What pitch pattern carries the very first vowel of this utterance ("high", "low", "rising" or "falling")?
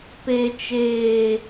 high